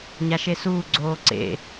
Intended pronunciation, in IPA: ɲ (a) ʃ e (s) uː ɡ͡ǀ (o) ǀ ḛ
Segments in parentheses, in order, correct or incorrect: correct, correct, incorrect

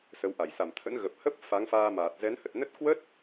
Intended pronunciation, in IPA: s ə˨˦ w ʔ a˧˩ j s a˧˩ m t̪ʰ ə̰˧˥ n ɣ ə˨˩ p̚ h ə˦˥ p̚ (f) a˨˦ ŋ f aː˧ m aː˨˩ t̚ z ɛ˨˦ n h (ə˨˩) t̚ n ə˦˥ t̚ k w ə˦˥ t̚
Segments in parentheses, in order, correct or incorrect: correct, correct

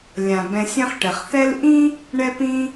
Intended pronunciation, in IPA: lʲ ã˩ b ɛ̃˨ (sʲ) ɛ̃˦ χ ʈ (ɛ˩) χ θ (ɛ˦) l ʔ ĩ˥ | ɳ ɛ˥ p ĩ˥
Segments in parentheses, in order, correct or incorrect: correct, correct, correct

